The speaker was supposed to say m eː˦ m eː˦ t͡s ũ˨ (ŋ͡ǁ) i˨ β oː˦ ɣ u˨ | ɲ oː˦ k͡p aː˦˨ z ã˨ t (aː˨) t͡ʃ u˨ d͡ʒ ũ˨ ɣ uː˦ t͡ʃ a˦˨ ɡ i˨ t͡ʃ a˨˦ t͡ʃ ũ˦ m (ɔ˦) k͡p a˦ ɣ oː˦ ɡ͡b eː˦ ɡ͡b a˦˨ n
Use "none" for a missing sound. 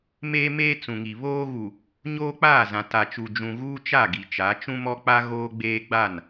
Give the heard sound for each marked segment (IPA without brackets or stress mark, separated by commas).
ŋ, a˨, ɔ˦